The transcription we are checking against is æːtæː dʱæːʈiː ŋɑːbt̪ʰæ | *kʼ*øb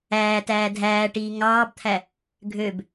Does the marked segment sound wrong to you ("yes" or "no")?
yes